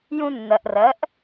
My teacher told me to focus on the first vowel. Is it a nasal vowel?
yes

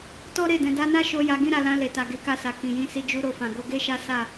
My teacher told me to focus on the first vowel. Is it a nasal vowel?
no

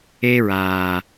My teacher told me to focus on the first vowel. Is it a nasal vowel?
no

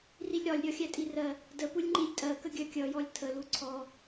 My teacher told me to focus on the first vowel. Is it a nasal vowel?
no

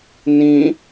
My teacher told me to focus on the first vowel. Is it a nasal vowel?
yes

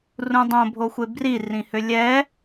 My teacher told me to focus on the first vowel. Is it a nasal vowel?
yes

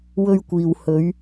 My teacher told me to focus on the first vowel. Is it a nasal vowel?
no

